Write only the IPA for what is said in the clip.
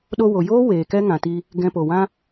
ɗo˧wo˨joː˦ weː˨kɛ˦ ŋã˨ti˧ | ɡɛ̃˧po˨wã˦

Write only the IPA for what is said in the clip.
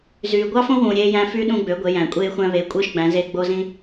zyː˩ɡʷɑ˥fõ˥wũː˩ ɾʲeː˧jæ̃˧fy˧˥ ɗũ˧ɡ͡bø˩˧ ɡʷe˩˧jæ̃˩kʷʼeː˧xʷæ̃˧ βeː˩˧kʷʼɯː˧ʃɡ͡bæ̃˩˧zeː˧ ɡ͡bo˧zĩ˧

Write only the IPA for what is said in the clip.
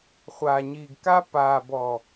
χʷaː˨ɲiː˨ɡka˦ paː˨ bɔ˨

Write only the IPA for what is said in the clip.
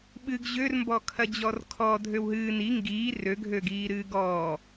ɓɨɡ ʑørmbɔ kʰɐd͡ʑɔrkʰɔ dʱøwɦɨː ni ŋɡiː røɡʱøɡiː ɾɨːɡɔː

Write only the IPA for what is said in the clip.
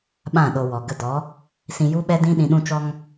ɓã˦˨ɗo˧wɔ˨ ɡə˧dɔ˨˦ | sĩ˧ju˦ɓɛ˦ dĩ˦ɗĩ˧ ɗũ˧t͡ʃɔ˧ŋ

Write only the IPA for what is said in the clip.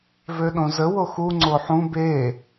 vøɗõzə woxu ŋ͡ǀoħũ be

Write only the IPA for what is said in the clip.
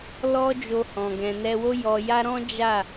lɔ˦d͡ʒo˧hɔ̃˨ ɡɛ̃˨nɛ˧wo˦ jɔ˧ja˦ ɾɔ̃˦d͡ʒa˦˨

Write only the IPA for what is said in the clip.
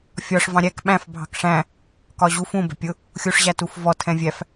fʲɒʂ vɑ̃ɾʲæk ɓæ̃f bʱɑ̤kʂæ̃ | kɒʑu fũ bɛ̤pʲʊ | xʲuʂʑætufvɔ tʰɛ̃vʲæf

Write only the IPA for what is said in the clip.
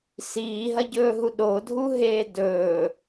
siːɦɐɟɵːɦu ɗodʱuɦeː dɵː

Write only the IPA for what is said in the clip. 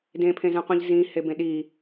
dẽpʰẽzɛ̃qʷĩʎ zĩhebẽ ɗi

